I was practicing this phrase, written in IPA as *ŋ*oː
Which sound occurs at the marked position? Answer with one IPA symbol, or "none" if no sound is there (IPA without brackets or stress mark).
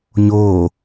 ɲ